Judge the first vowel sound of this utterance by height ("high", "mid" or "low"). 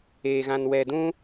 mid